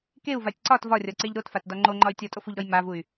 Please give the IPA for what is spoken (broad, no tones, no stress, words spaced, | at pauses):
keu̯vatʲ ǀɒt vɒrʲɒǀeʎ ɾotfatdɒ ŋ͡ǃoŋ͡ǃɒy̯ tʲɔtʼofuʎɾɔj mavuy̯